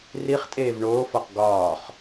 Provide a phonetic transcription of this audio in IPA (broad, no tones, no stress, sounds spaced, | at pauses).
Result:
r i χ tʼ eː v ɳ oː f ɒ q ɡ ɒː χ